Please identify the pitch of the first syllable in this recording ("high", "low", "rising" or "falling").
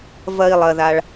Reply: low